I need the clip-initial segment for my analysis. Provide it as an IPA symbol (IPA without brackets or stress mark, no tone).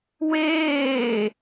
w